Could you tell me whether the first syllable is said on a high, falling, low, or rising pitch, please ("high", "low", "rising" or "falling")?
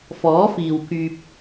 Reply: rising